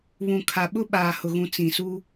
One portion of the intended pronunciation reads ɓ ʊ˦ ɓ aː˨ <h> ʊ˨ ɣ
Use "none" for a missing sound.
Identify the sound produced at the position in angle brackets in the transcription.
h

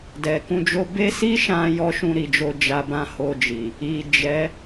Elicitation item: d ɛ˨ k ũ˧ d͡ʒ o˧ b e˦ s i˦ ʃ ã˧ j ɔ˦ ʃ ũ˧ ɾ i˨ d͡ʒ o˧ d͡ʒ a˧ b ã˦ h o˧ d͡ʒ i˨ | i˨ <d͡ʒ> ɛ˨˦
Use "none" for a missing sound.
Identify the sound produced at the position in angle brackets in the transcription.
d͡ʒ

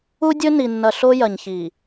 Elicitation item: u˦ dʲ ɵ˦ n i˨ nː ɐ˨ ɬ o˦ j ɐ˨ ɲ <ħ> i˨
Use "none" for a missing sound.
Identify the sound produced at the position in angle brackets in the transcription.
ç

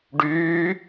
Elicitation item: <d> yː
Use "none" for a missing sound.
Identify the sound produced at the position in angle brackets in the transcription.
ɖ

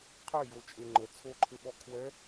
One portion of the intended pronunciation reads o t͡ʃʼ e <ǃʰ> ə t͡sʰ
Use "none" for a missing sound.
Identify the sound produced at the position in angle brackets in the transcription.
ŋ͡ǃ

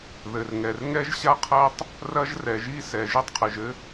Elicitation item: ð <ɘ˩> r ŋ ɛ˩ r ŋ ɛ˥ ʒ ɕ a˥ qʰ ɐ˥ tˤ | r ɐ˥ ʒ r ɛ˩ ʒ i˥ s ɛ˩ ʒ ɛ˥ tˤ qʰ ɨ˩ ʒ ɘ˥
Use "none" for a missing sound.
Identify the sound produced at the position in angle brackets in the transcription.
ɘ˩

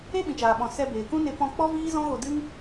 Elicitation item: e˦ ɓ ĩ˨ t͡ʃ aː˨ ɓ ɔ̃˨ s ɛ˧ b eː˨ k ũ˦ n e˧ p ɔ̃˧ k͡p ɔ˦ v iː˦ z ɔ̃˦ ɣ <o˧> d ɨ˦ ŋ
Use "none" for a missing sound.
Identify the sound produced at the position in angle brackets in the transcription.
o˧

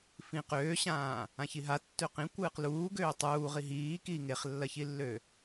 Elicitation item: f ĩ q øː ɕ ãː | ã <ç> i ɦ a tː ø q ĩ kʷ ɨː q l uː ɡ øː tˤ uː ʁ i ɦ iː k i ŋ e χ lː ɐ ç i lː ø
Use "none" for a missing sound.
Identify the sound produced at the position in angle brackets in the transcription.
ç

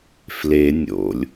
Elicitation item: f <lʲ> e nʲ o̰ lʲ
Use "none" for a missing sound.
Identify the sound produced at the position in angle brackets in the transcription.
l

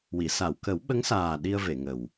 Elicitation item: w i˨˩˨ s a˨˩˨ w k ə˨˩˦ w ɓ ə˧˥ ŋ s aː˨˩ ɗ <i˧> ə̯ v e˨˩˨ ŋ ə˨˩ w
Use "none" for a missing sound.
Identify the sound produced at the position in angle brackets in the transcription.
i˧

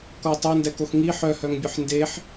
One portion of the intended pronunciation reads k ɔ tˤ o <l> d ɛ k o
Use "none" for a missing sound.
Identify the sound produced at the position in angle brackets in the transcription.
n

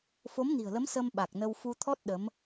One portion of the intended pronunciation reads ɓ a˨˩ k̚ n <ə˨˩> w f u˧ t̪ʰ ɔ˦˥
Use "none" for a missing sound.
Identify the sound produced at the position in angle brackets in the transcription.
ə˧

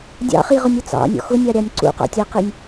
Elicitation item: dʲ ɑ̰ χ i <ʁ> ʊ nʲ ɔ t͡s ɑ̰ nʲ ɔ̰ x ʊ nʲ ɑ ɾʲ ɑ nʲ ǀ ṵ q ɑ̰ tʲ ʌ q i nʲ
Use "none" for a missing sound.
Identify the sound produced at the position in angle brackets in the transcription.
ʁ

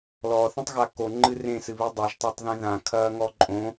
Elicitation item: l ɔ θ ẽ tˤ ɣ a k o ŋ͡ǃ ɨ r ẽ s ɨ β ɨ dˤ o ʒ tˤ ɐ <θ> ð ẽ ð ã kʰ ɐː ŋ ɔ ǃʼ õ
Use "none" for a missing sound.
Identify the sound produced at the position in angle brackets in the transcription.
tˤ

